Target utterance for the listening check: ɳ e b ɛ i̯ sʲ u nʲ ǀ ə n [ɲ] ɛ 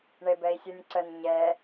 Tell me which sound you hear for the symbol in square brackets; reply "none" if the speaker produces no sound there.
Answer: ɲ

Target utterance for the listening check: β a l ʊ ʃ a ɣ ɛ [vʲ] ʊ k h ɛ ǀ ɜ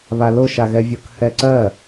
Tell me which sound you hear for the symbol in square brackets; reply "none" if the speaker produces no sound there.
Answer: vʲ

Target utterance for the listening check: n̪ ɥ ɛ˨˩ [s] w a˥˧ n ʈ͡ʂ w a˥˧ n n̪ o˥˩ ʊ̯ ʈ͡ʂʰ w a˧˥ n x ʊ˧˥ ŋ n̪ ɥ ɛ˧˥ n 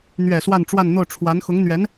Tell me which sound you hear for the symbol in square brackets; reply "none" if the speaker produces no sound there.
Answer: s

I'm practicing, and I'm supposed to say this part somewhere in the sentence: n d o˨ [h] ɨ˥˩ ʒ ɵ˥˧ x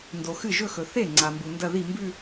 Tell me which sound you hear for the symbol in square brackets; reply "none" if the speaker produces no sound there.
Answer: x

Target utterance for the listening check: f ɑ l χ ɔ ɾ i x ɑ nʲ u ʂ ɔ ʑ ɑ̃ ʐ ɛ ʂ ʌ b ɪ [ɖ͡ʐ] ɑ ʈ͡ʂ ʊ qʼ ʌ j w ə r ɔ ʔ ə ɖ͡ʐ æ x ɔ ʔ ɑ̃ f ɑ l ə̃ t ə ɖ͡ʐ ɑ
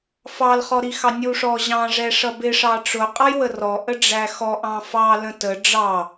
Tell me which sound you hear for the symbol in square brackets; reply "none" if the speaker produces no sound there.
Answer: ʂ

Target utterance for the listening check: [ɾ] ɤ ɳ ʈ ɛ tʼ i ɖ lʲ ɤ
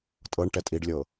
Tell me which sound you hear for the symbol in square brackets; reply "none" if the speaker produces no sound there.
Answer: tʼ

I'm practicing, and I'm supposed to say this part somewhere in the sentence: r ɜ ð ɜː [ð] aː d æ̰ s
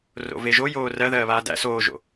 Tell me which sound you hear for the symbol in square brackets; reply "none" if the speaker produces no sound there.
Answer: β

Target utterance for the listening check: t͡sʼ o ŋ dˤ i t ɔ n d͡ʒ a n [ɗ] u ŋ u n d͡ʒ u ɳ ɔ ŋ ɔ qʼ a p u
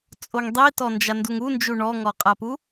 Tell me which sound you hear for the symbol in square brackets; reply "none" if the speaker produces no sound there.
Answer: d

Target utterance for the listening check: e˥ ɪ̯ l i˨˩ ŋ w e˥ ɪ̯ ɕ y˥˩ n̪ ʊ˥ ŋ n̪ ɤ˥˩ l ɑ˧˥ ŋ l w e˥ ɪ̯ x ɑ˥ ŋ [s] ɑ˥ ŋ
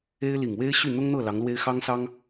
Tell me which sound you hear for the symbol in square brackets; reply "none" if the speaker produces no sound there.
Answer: s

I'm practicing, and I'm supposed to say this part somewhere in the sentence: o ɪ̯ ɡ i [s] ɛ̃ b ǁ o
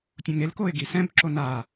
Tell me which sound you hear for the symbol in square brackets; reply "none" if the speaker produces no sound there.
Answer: s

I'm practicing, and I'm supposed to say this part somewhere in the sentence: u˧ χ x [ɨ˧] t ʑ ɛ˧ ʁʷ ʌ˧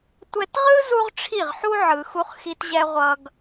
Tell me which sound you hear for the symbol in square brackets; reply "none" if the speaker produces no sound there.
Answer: i˧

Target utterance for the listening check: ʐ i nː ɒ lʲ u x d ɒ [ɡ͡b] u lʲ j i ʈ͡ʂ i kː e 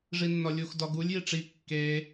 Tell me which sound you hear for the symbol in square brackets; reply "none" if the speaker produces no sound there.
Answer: ɡ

